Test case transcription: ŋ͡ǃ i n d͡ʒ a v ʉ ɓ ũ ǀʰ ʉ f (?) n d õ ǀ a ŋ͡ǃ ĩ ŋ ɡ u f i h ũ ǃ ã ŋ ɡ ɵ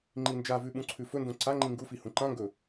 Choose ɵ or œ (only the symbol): ɵ